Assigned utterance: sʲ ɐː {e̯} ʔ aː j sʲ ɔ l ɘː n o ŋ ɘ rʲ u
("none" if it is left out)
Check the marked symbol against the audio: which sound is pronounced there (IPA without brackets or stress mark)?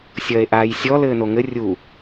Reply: e̯